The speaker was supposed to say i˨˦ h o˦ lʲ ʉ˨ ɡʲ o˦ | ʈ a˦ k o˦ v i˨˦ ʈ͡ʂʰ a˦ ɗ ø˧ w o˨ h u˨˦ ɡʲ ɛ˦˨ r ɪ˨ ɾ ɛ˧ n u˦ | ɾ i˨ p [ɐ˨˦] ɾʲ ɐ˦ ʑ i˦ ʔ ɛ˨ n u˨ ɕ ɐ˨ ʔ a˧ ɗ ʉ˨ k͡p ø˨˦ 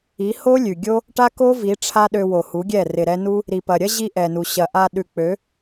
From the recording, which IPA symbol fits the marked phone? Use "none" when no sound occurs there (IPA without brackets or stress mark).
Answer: ɐ˨